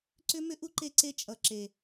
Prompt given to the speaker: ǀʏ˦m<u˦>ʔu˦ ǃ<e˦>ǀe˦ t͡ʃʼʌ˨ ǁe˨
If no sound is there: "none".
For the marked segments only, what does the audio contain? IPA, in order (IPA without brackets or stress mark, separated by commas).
ʏ˦, e˦